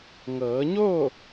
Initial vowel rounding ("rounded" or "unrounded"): unrounded